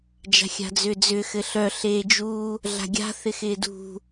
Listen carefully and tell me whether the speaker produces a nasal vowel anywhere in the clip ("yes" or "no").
no